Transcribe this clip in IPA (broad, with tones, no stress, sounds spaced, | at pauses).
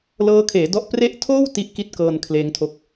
l ɤː˦˥ kʰ eː˩˦ d ɔ˦˥ ʔ p r e˦˥ ʔ tʰ oː˥˩ w t i˦˥ ʔ k i˦˥ t̚ k ɤː˧ n kʰ l eː˦˥ ŋ tʰ o˦˥ k̚